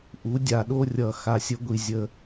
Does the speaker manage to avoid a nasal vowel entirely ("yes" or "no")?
yes